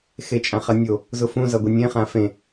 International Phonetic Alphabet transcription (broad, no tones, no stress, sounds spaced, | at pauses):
x e t͡ʃʼ ã χ ɐ nʲ o | z ʊ f ũ z ʌ ɡʷ e nʲ ẽ χ ã f ẽ